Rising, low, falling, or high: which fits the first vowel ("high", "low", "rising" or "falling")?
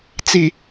low